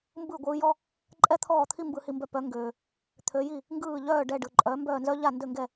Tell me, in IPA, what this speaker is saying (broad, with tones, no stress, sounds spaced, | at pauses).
m b ɯ˥˩ ɡʷ ɯː˧ j ɔ˥ | ǃʼ ɛ˥ t̪ʰ ɔː˥˩ t̪ʰ i˥ m b ɯ˧ h i˧ m b œ˧ p œ˩˥ ŋ ɡ øː˩ | t̪ʰ ø˩˥ j i˥˩ | ŋ ɡ ɯː˥˩ ʎ œː˥˩ ɖ ɛ˥˩ ɖ ɯ˩ ǃʼ œ˩˥ m b œː˥˩ n z œ˥ ʎ a˥˩ n d ø˥˩ ŋ ɡ ɛ˥˩